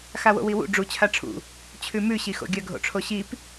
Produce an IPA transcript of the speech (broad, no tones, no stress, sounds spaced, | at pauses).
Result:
x a w o̰ w i w ṵ ɖ͡ʐ u t͡ɕʰ a ʈ͡ʂʰ ṵ | t͡ɕʰ ʉ m ʉ ɕ i x o̰ ɡʲ ɐ ɡʱ o̰ ʈ͡ʂʰ o ɕ i p